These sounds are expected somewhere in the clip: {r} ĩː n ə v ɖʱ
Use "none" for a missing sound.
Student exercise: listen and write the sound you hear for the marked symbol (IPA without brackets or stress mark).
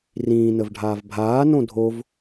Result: r